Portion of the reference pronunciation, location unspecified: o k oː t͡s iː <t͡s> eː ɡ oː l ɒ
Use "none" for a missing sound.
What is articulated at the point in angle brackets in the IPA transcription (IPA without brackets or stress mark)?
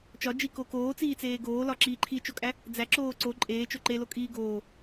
t͡s